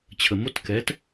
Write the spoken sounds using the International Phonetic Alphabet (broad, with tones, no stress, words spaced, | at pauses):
t͡ɕʰə˩mo˧˥˧t kɛ˩˥t